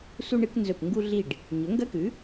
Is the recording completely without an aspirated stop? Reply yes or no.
yes